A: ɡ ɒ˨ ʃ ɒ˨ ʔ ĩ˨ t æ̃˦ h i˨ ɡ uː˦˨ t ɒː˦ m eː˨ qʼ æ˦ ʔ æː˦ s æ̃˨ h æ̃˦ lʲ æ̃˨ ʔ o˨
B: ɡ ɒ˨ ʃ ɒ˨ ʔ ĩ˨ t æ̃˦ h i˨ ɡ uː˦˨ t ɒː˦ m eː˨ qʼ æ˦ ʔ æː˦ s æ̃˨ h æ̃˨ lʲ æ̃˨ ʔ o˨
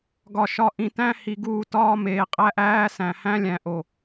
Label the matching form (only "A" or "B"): A